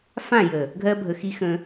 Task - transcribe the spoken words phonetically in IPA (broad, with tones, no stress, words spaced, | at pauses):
fã˦˨jə˨ | ɡʱɜ˦bʱə˨xi˦xə̃˦